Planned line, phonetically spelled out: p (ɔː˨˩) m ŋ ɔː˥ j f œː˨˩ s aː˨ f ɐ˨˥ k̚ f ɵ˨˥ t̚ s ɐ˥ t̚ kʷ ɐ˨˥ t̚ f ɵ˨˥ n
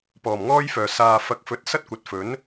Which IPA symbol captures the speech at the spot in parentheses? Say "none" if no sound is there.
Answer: ɔː˨˩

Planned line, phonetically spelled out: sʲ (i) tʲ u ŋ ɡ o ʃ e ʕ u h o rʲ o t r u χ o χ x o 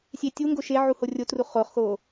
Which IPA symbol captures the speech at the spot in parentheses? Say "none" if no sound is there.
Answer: e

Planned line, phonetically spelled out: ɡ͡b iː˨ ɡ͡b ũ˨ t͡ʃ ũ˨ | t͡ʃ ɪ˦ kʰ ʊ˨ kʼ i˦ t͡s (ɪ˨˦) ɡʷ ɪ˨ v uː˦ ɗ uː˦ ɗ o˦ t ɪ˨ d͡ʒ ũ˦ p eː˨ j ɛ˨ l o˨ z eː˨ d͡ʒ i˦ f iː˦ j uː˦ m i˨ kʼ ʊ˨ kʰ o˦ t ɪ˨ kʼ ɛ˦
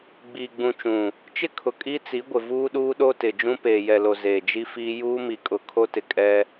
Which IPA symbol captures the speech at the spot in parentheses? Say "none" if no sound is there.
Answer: i˨˦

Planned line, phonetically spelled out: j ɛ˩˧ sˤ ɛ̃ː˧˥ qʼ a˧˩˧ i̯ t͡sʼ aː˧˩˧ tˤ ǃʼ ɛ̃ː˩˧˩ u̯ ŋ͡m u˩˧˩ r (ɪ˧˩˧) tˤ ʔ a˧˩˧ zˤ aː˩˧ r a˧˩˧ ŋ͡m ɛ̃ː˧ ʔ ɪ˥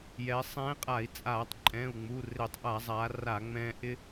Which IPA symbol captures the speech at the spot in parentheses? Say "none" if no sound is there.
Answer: ɪ˧˩˧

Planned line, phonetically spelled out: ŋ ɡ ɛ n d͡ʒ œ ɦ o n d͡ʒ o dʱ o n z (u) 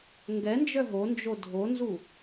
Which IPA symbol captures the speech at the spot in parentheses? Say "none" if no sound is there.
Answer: u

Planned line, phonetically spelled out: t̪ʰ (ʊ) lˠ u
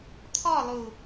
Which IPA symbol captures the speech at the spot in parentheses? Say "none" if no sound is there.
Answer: ɔ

